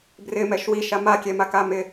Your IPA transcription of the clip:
brɪmɛʃ wiʃa makʲɛmaka mɪ

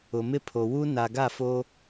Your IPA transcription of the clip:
ʊ˨mɪ˦pʰo˨ wu˦ na˨ɡa˦˨fo˦

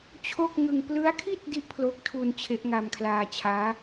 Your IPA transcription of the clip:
t͡ɕʰo˥˩k̚ ŋɯ˧ŋ plɯ˦˥a̯kʰi˥˩t̚ di˥˩ʔpʰlo˦˥k̚tʰu˧n t͡ɕʰe˦˥ʔŋa˧mkʰlaː˧t͡ɕʰaː˦˥

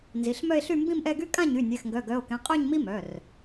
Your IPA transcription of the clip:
nzi˩˧˩ɬmœ˥˧e̯ɬy˥˧ mbĩ˥˧mʔɛ˥˧ɡy˥ kʼã˥˧ɲy˩˧˩ nʲɛ˩˧˩xŋɡœ˩˧˩ɡœ˩˧˩o̯kɛ̃˩˧˩ qʼœ˥˧ɲmi˥mœ˩˧˩r

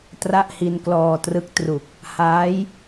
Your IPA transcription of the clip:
tra˥˩ʔhi˧nklɔː˧trɯ˦˥k̚ tru˨˩k̚ | haː˦˥j

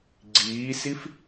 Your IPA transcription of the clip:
ɡ͡ǀiːsif

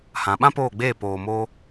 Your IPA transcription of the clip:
hã˨ɓã˦ poː˦˨ɡ͡beː˦˨ poː˨mo˧

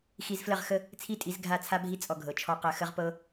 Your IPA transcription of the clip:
xi˧zflə˦˨ʁ xə˧ | t͡sʰi˦tʼi˨˦zɡʱa˦˨ t͡sʰa˦bʱi˦ t͡sʼɔ˧ɡʱɤ˨ t͡ʃʰɔ˧qɜ˧ xə˦ʁpɤ˦

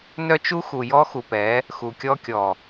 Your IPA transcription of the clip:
nœ˦t͡ʃu˦ xu˨jɔ˦xu˨pɛ˨˦ | xu˨kʲɔ˦kʲɔ˨

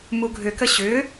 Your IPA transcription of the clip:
muɡʱʏkə ɕʏ

